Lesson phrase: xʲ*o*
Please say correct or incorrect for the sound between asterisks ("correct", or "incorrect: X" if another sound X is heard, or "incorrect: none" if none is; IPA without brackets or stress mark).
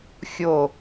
correct